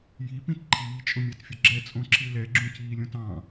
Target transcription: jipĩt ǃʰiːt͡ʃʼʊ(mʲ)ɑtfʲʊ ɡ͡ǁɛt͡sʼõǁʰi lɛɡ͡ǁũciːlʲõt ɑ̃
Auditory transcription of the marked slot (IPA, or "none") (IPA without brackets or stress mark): mʲ